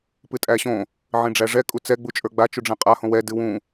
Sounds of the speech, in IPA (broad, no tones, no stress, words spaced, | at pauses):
pɨtʼæɕõ | ʕĩɖ͡ʐæʐɛ kʼut͡sɛ ɡ͡but͡ʃʼə˞ɡ͡ba t͡ʃuɖ͡ʐɛ̃qʼa hõwɛ dɨwũ